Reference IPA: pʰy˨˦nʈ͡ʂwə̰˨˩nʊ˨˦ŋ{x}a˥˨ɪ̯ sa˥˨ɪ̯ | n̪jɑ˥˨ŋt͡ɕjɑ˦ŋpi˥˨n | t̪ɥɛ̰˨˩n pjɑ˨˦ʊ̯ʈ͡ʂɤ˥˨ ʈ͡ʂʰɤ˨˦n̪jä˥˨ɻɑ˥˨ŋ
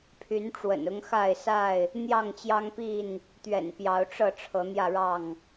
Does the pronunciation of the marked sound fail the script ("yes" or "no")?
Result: no